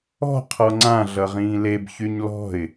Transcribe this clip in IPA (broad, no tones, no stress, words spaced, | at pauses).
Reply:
ɔ̤ qʰɔŋ͡ǀã ɮʌʁĩːleb çyɲlɔ̤ɪ̯